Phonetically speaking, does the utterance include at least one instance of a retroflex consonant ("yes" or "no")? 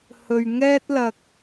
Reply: no